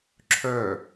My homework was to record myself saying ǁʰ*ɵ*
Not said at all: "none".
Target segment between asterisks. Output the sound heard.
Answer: œ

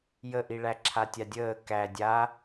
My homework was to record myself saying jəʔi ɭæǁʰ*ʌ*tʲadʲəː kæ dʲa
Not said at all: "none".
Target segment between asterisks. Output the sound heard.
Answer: a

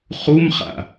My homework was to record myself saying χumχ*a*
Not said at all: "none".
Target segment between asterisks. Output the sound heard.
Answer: a̰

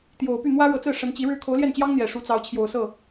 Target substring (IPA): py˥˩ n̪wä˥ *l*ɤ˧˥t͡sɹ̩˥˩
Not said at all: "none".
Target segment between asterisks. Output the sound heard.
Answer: ɻ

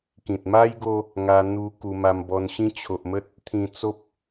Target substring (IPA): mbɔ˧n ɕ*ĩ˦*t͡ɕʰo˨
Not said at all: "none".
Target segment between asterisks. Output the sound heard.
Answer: ĩ˦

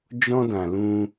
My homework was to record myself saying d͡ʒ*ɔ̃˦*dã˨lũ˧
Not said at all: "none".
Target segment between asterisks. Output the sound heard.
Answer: ɔ̃˦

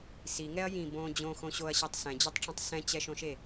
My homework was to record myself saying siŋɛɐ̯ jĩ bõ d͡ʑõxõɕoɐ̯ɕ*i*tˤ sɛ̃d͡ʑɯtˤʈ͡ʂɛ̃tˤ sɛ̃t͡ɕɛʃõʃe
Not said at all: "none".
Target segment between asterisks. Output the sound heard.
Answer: i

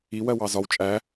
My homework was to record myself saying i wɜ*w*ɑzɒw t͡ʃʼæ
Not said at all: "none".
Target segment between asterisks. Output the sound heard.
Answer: w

